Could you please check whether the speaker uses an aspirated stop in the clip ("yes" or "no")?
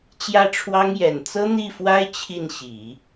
yes